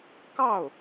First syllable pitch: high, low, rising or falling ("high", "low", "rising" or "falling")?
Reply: falling